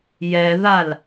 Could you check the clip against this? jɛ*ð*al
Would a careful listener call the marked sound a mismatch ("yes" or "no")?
no